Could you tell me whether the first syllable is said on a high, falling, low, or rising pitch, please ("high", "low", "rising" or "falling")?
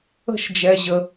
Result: falling